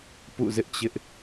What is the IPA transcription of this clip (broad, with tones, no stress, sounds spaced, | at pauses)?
p ṵ˦˨ z ɪ˦ ʔ t͡ɕ ɪ˦ ʔ